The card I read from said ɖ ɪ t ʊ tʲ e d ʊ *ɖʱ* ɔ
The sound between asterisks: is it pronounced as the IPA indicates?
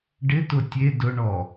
no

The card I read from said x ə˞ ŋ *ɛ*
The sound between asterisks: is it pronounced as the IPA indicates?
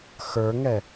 yes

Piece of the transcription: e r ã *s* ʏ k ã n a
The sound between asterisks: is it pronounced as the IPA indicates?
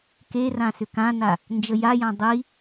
yes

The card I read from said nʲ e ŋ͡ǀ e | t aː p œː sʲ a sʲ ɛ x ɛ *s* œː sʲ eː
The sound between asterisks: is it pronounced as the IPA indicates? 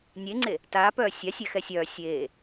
no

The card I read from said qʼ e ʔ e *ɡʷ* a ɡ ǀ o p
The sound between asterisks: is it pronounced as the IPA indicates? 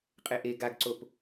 no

